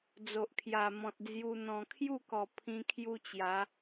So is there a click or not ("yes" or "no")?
no